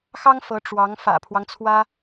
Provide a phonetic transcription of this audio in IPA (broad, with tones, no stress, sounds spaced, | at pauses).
x ɑ˥ ŋ f ɤ˧˥ ʈ͡ʂ w ɑ˧˥ ŋ f ä̰˨˩ pʰ w ɑ˦ ŋ t͡sʰ w ä˥